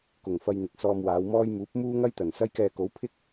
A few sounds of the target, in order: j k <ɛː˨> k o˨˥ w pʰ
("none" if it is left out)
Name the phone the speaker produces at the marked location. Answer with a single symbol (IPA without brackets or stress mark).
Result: ɛː˧